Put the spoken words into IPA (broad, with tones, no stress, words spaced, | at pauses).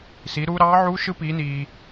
si˩˧ ɾuː˧ɾɑː˧˥ʕuː˧˥ʃɯ˧˥ piː˩˧niː˩